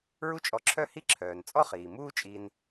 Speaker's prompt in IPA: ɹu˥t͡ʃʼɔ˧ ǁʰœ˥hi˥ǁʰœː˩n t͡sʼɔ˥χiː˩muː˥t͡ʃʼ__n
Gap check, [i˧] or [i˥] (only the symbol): i˧